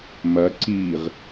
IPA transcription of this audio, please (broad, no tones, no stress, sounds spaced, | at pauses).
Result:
m ɐ ǀ iː ʁ